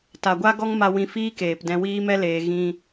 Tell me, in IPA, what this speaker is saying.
t a˨ ɡʷ a˦ ɡ ɔ˦ ŋ m a˧ w ĩ˧ f iː˦ k eː˨ p d ɛ̃˧ w iː˧ m ɛ˧ l eː˨ ɣ ĩ˧

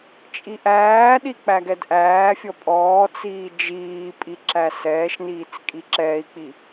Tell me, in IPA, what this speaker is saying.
t͡ʃʼ i ʔ æː ɗ i k͡p æ ɡ ɛ d ʔ æː fʲ ɔ pʼ ɔː t͡s iː d͡ʒ iː pʼ i ǁ æ s ɛː ʃ n iː t͡s kʼ i ǁ ɛː i̯ k͡p i

